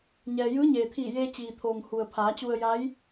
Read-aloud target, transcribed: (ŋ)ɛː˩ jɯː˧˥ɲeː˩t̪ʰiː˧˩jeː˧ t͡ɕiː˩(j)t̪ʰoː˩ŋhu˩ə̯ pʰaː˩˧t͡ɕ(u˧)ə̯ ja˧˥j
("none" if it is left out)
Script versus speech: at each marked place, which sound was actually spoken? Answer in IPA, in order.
ɲ, none, u˧

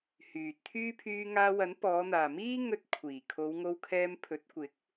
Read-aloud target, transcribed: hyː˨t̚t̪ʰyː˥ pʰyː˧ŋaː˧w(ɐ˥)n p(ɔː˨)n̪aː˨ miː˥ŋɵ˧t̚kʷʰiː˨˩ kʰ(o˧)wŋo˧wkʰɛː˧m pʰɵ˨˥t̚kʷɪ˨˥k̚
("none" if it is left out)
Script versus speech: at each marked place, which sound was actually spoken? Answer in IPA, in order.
ɐ˨˥, ɔː˨˧, o˨˧

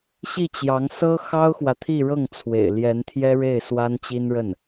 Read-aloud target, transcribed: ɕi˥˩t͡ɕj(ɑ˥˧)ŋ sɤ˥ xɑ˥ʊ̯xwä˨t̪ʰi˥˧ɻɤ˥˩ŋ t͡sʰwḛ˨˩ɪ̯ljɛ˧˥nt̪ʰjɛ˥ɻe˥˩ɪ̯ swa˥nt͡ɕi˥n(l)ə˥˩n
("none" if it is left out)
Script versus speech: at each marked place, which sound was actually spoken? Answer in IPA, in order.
ɑ˧˥, ɻ

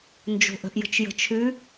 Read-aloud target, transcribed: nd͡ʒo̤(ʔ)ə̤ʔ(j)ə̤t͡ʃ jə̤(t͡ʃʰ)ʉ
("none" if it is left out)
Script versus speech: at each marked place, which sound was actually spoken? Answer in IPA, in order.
ʔ, j, t͡ʃʰ

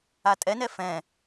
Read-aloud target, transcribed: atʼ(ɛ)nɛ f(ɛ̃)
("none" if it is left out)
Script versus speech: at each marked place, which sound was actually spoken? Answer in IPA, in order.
ɛ, ɛ̃

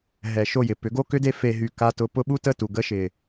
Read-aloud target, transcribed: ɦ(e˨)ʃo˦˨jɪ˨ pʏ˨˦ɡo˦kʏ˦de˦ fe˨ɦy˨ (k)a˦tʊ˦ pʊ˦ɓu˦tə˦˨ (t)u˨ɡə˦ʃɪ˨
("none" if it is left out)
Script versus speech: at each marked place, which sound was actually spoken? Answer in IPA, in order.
ɛ˨, k, t

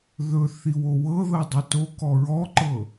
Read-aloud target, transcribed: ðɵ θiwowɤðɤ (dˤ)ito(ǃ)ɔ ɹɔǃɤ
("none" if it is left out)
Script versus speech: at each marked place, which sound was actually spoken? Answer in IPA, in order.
dˤ, k

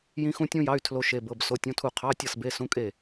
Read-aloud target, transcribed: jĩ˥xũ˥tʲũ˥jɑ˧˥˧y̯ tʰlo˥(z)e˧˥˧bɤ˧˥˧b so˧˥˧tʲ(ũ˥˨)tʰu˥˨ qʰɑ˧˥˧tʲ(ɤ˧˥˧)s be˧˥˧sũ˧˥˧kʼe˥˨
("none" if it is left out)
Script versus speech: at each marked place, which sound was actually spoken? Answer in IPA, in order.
ʃ, ũ˧˥˧, ɤ˥˨

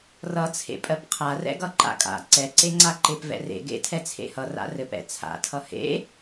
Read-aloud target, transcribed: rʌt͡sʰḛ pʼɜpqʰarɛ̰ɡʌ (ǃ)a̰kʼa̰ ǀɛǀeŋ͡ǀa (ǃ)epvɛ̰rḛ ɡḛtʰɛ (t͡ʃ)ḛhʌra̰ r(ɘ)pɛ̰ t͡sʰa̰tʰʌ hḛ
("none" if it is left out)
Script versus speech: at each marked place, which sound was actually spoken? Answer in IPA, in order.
ǃ, ǃ, t͡sʰ, ɘ

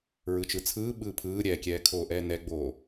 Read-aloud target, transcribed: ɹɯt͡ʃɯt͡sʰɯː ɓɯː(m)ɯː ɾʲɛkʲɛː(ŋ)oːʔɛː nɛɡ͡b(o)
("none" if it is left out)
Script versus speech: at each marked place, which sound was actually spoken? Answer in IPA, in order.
pʰ, kʰ, oː

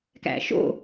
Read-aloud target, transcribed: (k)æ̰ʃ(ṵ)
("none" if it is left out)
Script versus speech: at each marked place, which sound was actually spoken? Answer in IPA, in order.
k, o̰

